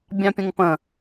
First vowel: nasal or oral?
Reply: nasal